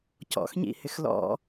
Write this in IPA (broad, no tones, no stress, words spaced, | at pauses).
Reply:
cɔ̰xɲḭhɪx lɔ̰